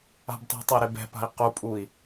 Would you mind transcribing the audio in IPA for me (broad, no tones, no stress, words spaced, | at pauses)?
a̤btˤi̤tˤɐi̯ ɾebɛ̤pa̤i̯ qupʼui̯